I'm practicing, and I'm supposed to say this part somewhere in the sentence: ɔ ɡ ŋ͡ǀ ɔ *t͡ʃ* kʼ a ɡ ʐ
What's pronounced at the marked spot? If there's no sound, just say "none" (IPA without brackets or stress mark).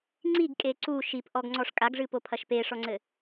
ʂ